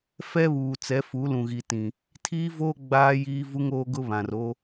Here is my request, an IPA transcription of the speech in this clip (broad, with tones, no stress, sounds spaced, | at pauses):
f ɛ˦ β uː˨ t͡s ɛ˨˦ f u˨˦ l ũ˨ ɣ i˨ t ĩ˨ | tʰ iː˦ v oː˦ ɡ͡b aː˦ j iː˦ v u˦ ŋ oː˦ ɡ ʊ˦ β ã˨ r o˦